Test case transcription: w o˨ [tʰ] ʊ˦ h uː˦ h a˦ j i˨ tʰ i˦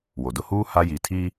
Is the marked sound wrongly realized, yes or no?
yes